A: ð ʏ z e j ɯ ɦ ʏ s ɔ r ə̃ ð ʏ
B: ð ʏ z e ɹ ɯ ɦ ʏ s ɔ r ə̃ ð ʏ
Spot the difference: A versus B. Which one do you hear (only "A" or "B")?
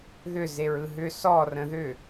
B